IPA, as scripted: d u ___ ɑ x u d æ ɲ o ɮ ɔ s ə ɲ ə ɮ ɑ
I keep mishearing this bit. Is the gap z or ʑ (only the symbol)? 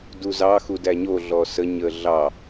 z